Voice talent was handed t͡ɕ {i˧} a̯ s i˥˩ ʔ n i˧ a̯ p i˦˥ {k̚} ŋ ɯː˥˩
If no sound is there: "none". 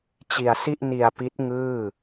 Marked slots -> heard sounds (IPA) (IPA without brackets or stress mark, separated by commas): i˧, t̚